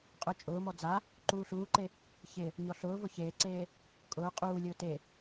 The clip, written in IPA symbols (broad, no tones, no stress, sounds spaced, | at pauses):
qʼ ʊ t͡ʃʼ ʊː m ɔ d͡z a | ǃ uː ɬ uː ǃ e | ç ɪ | ɲ ɔ ɬ ʊː v ʊ ç eː ǀ eː | kʼ ʊː qʼ uː lʲ ʊː t e